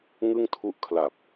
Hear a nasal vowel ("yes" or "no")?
no